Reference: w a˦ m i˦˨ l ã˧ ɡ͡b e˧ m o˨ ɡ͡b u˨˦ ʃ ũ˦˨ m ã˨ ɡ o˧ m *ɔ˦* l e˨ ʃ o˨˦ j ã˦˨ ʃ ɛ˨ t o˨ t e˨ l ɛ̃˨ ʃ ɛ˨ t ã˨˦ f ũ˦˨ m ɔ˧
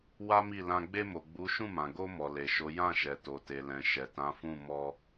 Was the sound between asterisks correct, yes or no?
no